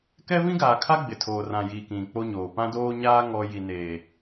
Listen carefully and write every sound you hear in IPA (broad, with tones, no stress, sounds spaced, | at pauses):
k ɛ˦ v ĩ˦ ɡ aː˨ kʰ a˦ ɡ͡b ɪ˨ tʰ oː˨ r ã˨ j iː˨ k ĩ˨ k͡p o˦ ɲ oː˨ p ã˦ d oː˦ ɲ aː˦ ŋ ɔ˦ j i˨ n eː˨